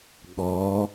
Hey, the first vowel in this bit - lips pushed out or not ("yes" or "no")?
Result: yes